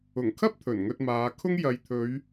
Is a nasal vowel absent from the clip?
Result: yes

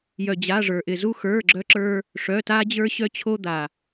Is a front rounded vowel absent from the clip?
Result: no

